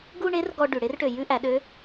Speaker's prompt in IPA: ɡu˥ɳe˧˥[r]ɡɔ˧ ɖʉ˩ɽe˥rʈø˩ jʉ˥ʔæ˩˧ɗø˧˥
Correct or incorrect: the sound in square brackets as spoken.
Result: correct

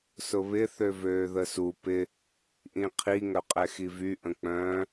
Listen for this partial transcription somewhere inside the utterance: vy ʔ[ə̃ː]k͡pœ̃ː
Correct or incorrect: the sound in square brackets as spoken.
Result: incorrect: ə̃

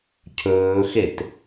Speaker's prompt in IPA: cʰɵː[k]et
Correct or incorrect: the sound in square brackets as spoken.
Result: incorrect: x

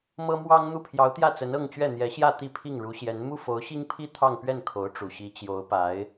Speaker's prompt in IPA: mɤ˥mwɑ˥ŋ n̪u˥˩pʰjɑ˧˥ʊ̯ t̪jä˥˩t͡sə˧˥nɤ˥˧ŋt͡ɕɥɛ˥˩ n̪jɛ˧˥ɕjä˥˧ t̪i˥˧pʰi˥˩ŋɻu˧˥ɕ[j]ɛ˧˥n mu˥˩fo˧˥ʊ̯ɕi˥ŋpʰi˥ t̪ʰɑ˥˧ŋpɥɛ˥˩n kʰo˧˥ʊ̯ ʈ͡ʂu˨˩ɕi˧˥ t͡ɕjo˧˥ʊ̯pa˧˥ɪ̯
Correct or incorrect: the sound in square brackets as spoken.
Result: correct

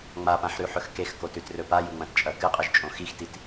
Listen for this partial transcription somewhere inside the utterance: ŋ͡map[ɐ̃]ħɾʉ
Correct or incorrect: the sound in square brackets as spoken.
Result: incorrect: ã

